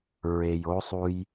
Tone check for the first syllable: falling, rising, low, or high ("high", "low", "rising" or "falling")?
low